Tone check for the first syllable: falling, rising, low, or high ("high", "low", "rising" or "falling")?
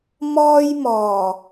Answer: high